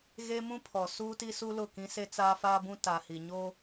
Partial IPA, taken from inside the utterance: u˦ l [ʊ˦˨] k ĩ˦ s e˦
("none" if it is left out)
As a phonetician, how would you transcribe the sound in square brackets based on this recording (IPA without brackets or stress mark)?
ʊ˦˨